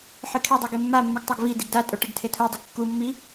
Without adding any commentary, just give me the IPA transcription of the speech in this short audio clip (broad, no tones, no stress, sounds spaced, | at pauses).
ħ ɨ kʰ e dˤ u ɡ e mː a mː u ɡ tˤ o ɡ v i d i ɡ d a tʼ o ʈ ɨ ɡ tʰ e tʰ u dˤ i ɡ kː u mː i